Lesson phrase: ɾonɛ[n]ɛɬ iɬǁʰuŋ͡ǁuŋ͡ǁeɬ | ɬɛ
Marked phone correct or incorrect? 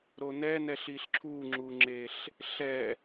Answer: correct